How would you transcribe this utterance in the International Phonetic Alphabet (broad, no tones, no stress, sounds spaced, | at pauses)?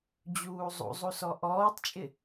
d͡ʑ uː zˤ ṵ zˤ u s ɔ ʔ ɔː tˤ t͡ʃʼ ɪ